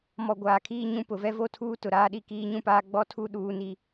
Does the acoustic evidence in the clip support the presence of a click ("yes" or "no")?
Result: no